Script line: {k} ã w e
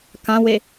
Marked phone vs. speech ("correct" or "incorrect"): correct